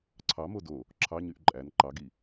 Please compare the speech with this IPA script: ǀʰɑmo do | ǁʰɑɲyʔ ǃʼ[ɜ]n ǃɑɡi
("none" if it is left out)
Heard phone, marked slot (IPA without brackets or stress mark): æ